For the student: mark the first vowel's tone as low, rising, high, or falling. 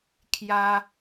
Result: high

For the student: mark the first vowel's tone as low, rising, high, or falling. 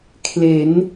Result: rising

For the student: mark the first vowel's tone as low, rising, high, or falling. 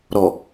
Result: low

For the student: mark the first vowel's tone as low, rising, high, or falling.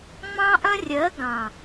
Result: high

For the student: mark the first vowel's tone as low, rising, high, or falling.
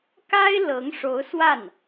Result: high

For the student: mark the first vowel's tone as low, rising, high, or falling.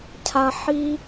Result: low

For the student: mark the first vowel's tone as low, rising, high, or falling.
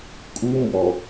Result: high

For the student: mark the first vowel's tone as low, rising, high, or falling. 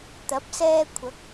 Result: rising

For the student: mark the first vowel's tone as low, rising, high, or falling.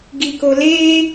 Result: low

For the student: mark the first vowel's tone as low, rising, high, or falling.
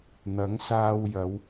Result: rising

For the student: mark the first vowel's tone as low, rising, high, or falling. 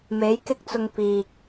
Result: rising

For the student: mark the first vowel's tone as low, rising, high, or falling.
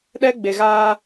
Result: high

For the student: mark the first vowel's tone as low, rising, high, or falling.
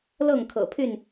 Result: falling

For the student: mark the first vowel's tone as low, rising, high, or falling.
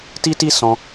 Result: high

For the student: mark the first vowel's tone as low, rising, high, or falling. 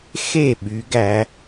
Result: falling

